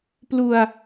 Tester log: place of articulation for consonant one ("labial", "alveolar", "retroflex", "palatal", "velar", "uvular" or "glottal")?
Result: labial